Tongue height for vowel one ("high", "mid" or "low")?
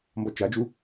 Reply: mid